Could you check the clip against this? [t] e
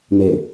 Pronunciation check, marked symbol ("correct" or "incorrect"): incorrect